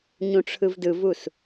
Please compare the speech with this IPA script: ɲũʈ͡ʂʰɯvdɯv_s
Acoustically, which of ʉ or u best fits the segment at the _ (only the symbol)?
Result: u